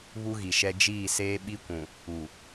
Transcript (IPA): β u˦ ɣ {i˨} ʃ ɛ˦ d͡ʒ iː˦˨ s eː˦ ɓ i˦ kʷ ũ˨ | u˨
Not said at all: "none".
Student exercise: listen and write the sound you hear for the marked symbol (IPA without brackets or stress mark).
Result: i˨